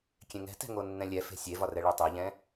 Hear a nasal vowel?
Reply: yes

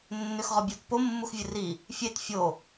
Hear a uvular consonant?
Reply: yes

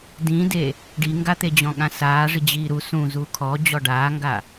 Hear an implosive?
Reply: yes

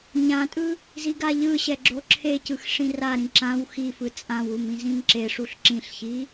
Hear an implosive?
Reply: no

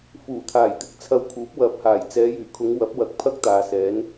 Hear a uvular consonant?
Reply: no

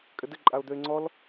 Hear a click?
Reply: yes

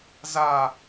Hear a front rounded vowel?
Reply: no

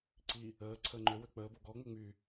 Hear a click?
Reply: yes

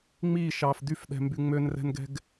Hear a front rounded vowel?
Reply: yes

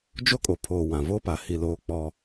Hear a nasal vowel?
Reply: yes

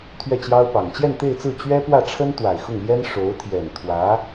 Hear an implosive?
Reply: no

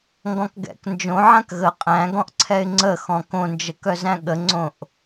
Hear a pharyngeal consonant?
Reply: yes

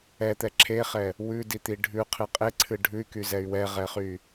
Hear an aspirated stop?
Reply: yes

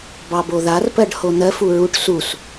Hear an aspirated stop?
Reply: no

